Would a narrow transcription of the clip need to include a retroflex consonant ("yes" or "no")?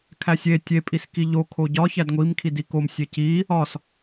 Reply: no